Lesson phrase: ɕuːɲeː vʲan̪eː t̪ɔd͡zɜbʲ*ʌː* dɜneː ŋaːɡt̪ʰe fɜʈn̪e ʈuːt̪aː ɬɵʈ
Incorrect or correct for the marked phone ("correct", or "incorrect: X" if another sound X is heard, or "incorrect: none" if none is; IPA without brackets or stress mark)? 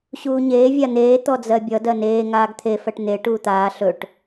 incorrect: ʌ